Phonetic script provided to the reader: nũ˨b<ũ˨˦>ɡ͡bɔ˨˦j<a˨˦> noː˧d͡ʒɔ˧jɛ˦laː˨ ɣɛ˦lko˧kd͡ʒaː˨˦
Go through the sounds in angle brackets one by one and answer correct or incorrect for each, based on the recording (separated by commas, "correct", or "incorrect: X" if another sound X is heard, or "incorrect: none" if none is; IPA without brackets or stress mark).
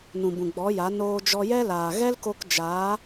incorrect: ũ˨, correct